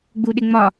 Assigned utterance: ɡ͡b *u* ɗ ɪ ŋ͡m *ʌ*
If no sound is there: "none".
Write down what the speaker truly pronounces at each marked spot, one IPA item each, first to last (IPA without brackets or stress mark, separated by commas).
u, ɒ